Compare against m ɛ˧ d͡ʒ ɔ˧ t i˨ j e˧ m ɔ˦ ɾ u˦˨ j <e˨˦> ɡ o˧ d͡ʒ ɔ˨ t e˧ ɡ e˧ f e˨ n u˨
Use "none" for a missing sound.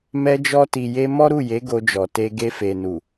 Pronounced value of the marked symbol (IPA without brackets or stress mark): e˨˦